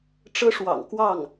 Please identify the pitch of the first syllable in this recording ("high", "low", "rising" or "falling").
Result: high